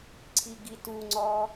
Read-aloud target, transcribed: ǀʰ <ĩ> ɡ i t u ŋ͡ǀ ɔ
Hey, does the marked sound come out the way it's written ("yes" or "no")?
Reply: no